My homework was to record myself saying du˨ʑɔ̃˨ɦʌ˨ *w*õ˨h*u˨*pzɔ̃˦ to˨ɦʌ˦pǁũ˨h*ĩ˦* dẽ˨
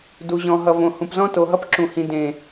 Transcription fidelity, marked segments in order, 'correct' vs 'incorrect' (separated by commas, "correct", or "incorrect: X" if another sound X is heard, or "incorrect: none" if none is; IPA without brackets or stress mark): incorrect: v, incorrect: ũ˨, incorrect: ĩ˨